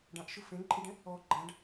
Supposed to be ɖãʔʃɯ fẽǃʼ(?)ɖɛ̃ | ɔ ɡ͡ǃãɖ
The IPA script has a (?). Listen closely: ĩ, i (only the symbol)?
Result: i